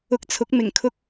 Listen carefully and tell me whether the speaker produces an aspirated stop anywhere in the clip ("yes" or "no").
yes